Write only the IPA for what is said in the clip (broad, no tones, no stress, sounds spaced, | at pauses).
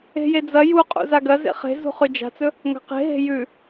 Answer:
e̤ j e d͡z ɐ j u qʼ ṵ z a ɡ ɐ z ḛ χ e̤ z ṳ χ ʉ d͡ʒ a̤ t͡s ɵ | ŋ a̤ q e̤ ɦ e̤ j ʉ